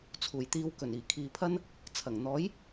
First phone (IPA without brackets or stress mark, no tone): t͡sʰ